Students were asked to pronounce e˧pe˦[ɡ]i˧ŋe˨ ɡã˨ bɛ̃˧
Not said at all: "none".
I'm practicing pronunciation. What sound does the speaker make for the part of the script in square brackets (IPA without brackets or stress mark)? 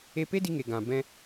d